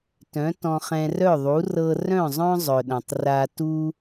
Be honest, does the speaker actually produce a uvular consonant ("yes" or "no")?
yes